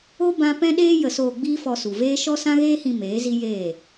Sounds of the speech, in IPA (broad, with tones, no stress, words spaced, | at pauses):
o˦ bã˦ pɛ̃˦ɗeː˦ jə˧soː˧ ɡ͡biː˦fɔ˧su˨ veː˦ ʃɔ˦sã˦ɣeː˦hĩ˧ meː˨˦zi˦ jeː˦˨